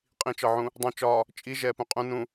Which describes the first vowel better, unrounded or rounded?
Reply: unrounded